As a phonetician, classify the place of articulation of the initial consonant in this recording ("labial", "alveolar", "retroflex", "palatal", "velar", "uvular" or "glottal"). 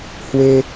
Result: glottal